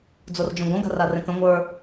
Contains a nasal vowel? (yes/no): yes